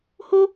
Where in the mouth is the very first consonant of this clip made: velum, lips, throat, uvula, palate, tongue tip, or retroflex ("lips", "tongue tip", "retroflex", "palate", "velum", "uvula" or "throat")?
throat